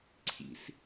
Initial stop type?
click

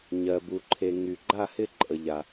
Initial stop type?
plain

